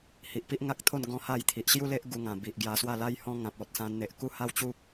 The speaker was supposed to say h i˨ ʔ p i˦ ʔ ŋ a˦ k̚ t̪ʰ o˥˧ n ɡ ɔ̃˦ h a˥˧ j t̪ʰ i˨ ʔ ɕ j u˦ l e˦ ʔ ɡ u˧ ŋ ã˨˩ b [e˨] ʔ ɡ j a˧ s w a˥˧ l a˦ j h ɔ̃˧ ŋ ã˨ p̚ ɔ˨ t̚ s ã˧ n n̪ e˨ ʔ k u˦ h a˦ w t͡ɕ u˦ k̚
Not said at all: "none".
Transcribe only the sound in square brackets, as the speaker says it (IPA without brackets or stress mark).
i˨